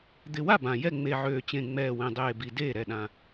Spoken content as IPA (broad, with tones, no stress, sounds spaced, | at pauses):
d̪ ɪ˨˩ w a˥˩ b ã˨˩ j ɛ˥˩ ŋ͡m e˨˩ ʕ øː˨˩ t͡ɕ ẽ˨˩ ŋ͡m ɛː˨˩ w ẽ˨˩ dˤ eː˨˩ b i˨˩ d eː˥˩ ɾ ɛ˥˩ ɗ ã˨˩